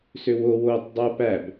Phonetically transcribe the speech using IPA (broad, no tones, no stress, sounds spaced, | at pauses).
s ø w o w oː tˤ dˤ oː p æ b